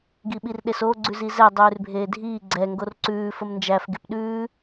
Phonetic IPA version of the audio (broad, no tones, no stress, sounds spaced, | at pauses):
ɡ i ɓ i r ɗ e s o ɡ͡ǀ ʉ z i z ɛ dˤ ʉː r bʱ eː dʱ iː ɡ͡ǀ ɛ ŋ ɡ o r ǀ ʉː f ə m n d͡ʒ æ f ɡ e p ɗ ʉː